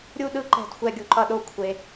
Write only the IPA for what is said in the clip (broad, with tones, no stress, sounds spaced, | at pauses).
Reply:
ɾʲ u˥˧ ɗ ɯ˥˧ ǃ ɛ̤˧˩ d xʷ ɛ˥˧ ɡʲ u˧ ǃ ʌ˥˧ ɗ o˥˧ kʷʰ e˧